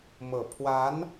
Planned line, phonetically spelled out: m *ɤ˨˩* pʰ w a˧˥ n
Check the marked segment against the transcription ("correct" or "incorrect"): correct